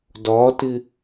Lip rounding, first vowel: rounded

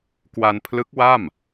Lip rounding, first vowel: unrounded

